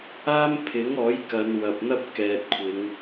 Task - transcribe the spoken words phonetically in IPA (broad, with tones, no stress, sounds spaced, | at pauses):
aː˥ m pʰ ɪ˨˥ ŋ ɔː˨˥ j k ɐ˨˧ n w ɐ˨ p̚ n̪ ɐ˥ p̚ k ɛː˨ t̚ kʷʰ ɪ˨˧ ŋ